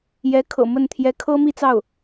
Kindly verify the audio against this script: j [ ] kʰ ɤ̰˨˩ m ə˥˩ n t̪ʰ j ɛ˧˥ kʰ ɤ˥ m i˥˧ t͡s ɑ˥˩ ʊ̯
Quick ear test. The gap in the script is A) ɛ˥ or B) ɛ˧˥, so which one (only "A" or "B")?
B